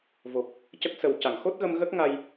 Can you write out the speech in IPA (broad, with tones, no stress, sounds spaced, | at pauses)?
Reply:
v o˨˩ k̚ | c ə˦˥ k̚ s ə˨˩ w c a˨˩˨ ŋ x o˦˥ t̚ ɣ ə˧ m ɣ ə˦˥ k̚ ŋ a˧ j